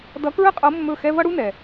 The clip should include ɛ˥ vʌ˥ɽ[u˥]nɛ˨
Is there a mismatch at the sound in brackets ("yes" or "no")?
no